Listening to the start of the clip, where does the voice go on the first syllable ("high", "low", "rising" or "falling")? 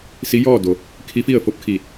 rising